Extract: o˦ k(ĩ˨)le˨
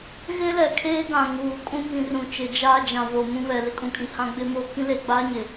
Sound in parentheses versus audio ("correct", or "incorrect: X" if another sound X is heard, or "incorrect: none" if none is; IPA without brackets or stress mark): incorrect: ĩ˦